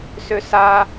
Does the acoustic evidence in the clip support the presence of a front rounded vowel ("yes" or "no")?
yes